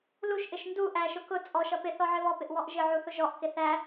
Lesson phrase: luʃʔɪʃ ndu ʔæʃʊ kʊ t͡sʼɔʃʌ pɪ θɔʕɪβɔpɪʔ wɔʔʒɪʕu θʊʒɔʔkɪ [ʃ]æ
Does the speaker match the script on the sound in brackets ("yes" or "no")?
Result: no